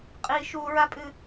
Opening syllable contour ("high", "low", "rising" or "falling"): high